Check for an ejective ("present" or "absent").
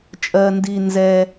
present